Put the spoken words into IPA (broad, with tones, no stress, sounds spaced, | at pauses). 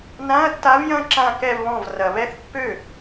n ã˧˥˧ ɐ̯ tː a˧˥ v j ɐ̃˥˧ ǁ ã˥˧ k ɛ˥˧ v β ɔ̃˥˩ v r ɐ˨ β ɛ˥˧ θ pː ø˥˩